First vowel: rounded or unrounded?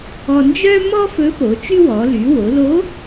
rounded